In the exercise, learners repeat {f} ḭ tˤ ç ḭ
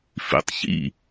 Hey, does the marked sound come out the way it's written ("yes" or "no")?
yes